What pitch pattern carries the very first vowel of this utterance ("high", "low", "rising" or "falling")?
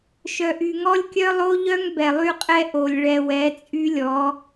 low